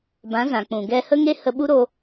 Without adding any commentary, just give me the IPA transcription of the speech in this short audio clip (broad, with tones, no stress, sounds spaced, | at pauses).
b ã˨˦ z ã˨ k͡p ũ˨ ɡ ɛ˧ h ə˦ ŋ e˦ h ə˧ ɓ u˦ ɾ o˧